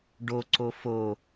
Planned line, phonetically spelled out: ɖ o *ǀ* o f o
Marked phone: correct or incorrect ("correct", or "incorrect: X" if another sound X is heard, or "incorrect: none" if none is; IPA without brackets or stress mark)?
correct